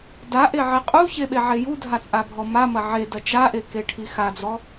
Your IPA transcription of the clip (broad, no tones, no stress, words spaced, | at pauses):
daʔeʕi qʼuçeɓeʕe judʱat͡sʼabʱɔ mamɐ ʕedɐ t͡ʃaʔekeʈʰi xad͡zɔ